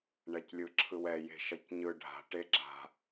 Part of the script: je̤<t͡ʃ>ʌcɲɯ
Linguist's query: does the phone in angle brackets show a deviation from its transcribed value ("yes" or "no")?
yes